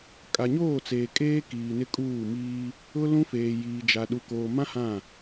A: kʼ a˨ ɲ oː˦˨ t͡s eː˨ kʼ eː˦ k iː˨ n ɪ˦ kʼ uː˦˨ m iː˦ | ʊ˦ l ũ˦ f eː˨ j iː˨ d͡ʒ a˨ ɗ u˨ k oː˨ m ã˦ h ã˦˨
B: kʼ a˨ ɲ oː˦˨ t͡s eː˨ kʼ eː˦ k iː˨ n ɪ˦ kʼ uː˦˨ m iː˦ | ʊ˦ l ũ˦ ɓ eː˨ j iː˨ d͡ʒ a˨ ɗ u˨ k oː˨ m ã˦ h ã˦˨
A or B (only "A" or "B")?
A